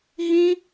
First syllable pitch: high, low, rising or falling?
high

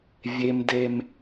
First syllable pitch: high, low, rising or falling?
high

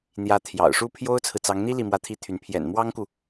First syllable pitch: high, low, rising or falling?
rising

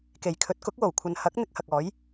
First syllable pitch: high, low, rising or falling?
low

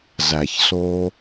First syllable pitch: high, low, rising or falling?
low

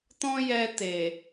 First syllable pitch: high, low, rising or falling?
high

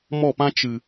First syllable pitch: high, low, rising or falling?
falling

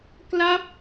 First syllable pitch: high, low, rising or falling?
falling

